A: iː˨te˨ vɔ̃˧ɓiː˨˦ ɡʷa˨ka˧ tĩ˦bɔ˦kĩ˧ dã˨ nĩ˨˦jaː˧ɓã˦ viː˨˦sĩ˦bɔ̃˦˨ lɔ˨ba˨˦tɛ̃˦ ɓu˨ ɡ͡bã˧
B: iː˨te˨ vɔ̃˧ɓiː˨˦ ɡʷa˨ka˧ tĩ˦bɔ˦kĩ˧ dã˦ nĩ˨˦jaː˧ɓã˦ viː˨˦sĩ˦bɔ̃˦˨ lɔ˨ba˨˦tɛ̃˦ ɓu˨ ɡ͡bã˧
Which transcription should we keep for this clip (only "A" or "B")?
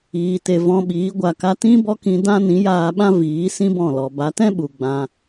B